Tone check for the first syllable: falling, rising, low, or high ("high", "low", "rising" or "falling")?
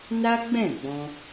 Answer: high